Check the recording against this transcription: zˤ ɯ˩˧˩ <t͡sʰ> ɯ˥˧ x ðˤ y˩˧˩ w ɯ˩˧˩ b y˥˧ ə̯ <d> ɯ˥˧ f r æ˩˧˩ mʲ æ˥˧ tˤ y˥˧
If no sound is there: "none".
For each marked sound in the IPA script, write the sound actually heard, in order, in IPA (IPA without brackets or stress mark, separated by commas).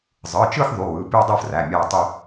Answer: t͡ʃ, dˤ